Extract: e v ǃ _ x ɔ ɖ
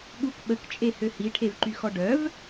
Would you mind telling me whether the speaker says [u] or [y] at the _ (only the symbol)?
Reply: y